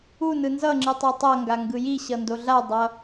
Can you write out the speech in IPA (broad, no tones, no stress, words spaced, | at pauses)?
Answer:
u nɯnzʌŋ͡ǁɯ tˤetˤʌŋɡa ŋɡɯjiɕʌ ndoɮadˤʌ